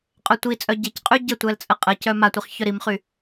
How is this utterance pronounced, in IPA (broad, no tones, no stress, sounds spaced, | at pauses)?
qʼ œ tʷ i t͡sʼ œ ɟ e c qʼ y ɟ ə tʷ ɛ l t͡sʼ ə qʼ ə c œ m a tʷ i χ ç œ ɾ i m χ y